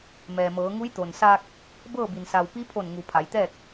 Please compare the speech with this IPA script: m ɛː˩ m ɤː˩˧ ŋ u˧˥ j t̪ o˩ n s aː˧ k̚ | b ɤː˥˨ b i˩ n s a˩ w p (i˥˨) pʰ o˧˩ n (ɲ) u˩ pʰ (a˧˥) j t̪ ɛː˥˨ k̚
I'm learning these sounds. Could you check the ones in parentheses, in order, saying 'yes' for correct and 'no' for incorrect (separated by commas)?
no, no, no